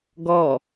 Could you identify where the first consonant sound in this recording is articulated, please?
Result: velar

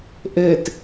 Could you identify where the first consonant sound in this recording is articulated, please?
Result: glottal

